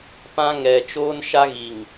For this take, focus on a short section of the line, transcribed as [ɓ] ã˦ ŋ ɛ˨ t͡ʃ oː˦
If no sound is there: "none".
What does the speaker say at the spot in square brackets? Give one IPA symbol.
p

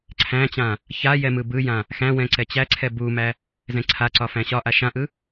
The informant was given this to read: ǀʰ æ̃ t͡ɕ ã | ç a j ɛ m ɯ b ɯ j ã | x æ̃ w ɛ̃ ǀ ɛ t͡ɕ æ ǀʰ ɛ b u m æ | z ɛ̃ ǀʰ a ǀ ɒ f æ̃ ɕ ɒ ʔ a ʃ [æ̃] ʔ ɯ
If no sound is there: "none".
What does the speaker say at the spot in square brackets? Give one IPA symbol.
ã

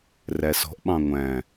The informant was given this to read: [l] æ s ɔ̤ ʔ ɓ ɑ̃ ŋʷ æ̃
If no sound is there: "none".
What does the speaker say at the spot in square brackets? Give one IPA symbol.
r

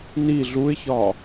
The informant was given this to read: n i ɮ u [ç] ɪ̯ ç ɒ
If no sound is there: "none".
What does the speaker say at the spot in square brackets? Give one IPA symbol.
none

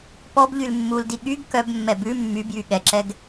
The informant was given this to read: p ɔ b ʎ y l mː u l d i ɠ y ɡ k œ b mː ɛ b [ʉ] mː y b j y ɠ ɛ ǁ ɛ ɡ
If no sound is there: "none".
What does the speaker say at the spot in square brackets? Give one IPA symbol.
ʉ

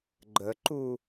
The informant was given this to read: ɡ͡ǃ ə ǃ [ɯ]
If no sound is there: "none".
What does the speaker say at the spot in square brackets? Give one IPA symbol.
u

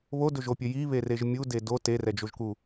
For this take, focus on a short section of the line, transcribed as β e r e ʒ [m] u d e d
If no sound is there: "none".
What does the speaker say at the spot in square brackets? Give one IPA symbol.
mʲ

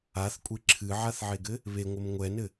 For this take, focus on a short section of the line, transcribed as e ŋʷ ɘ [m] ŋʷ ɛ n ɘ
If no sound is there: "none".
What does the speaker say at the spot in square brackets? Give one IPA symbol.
m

